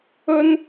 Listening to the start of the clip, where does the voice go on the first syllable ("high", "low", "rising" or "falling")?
high